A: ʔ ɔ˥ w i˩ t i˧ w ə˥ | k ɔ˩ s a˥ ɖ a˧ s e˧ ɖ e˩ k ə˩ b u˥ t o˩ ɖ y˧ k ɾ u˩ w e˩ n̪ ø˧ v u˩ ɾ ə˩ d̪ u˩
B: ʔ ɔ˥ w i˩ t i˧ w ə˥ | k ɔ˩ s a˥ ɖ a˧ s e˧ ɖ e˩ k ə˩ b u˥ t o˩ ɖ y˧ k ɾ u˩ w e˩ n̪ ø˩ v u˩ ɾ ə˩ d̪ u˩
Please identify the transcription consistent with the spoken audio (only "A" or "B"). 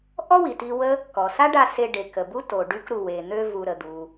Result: A